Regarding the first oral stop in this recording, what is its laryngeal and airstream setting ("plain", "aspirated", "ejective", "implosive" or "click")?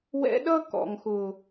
implosive